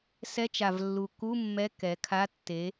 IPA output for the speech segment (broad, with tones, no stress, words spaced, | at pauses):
sɛ˧˥˧t͡ʃa˨˩vlːu˨˩ ku˧˥˧ mːɛ˧˥˧ kɛ˩˧kʰa˧˥˧tːe˨˥